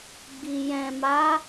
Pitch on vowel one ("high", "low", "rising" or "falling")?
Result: low